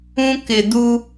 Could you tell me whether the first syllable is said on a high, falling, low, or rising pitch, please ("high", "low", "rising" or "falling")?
high